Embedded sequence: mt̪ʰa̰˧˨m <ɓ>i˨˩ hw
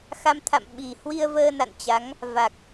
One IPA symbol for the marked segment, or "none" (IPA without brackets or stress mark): ɓ